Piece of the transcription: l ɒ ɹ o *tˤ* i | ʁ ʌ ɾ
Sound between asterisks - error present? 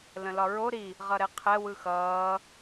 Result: yes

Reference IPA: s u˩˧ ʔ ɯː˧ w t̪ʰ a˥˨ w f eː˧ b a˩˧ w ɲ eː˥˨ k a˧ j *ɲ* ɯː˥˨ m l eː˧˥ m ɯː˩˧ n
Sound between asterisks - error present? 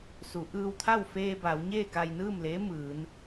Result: yes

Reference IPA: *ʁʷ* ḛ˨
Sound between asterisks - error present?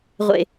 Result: no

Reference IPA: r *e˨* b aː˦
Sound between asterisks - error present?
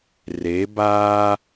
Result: yes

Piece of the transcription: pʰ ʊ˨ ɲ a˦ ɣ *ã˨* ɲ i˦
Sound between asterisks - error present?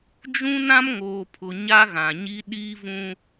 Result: no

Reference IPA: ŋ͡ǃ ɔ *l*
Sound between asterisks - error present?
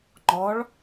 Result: yes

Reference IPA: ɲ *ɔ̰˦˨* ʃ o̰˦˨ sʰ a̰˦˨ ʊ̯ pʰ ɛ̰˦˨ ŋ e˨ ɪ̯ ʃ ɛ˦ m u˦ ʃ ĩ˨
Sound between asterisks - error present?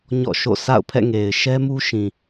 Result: no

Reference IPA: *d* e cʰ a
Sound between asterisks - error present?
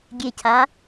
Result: yes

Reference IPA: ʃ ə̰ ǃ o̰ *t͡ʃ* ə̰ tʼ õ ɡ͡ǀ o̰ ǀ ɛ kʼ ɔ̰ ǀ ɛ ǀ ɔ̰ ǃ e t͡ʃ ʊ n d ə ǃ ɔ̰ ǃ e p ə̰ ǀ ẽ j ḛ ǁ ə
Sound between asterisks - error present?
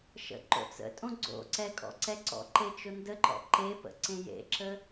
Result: yes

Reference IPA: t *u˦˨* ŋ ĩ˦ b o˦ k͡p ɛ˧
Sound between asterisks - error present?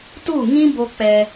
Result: no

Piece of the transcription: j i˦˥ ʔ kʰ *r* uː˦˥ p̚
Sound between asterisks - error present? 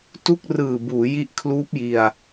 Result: yes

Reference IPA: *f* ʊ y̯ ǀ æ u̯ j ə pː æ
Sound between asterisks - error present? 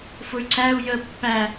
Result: no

